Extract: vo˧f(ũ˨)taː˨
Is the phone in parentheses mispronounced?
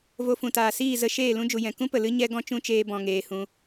no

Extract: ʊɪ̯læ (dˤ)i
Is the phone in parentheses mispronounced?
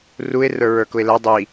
no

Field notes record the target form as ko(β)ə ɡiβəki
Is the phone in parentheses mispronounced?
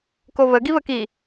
no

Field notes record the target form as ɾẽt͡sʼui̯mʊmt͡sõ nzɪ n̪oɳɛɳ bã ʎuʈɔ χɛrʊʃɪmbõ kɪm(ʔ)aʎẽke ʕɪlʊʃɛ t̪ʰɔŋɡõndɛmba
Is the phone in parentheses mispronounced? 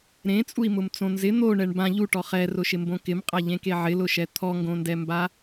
yes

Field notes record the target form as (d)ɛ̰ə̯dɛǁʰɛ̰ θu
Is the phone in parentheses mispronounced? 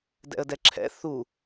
no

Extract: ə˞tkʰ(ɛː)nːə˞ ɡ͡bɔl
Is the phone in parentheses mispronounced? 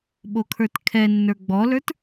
yes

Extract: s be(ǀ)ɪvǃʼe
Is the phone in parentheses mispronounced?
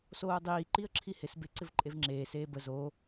no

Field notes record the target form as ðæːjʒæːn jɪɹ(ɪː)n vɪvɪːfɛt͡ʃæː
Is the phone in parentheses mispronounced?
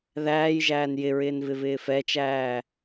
no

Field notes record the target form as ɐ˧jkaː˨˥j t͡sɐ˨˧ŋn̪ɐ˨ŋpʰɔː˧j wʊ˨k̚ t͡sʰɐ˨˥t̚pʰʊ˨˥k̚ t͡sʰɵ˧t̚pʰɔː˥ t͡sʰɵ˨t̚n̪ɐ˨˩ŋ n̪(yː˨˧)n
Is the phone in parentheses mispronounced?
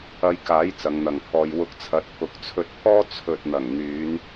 no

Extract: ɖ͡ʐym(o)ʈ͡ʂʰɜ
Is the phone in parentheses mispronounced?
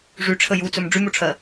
yes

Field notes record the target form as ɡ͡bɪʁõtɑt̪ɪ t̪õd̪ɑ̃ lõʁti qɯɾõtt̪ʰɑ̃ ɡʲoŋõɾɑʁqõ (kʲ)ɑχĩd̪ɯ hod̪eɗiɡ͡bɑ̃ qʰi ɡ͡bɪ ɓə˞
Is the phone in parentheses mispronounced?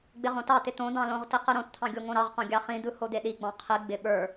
yes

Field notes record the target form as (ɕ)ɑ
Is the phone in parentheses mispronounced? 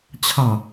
yes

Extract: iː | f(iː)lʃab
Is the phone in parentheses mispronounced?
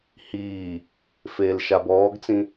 yes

